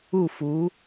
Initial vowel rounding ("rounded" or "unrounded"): rounded